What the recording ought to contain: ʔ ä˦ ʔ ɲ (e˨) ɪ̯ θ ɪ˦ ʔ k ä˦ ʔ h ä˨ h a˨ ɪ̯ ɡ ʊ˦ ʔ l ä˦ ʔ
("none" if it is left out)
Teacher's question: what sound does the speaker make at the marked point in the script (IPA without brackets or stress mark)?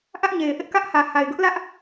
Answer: e˨